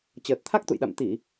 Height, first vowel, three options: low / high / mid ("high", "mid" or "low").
mid